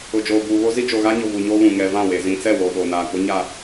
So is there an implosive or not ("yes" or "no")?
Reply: yes